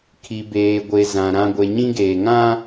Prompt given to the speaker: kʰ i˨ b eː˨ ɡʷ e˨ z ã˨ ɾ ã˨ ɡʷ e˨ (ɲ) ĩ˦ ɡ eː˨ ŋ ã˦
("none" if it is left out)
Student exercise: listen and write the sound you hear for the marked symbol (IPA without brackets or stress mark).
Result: ɲ